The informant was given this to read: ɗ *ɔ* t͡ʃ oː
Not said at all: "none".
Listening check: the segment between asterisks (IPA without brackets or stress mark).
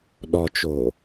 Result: ɔ